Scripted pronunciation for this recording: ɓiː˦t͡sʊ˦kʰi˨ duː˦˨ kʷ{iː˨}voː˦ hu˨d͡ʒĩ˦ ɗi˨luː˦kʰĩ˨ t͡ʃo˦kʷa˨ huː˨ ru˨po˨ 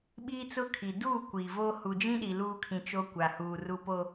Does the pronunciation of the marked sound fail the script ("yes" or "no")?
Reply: no